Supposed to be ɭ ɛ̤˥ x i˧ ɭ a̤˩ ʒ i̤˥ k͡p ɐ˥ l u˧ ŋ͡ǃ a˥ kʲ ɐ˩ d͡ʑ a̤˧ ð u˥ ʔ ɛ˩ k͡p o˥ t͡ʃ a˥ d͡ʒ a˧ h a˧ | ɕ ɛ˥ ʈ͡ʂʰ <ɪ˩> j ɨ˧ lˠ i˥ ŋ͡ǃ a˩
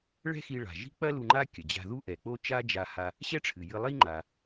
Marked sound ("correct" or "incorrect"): incorrect